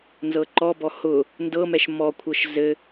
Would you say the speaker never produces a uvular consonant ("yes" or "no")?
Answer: yes